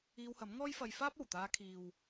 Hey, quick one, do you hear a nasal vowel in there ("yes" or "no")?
no